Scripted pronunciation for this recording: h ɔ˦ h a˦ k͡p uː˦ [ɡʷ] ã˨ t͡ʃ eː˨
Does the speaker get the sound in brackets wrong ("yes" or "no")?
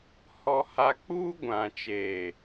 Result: no